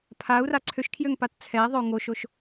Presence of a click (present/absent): present